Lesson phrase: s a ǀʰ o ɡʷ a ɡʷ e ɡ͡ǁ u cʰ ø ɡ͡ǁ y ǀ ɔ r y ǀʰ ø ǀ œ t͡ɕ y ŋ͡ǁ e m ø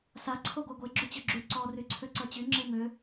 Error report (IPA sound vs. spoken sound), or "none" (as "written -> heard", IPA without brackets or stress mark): cʰ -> t͡ɕ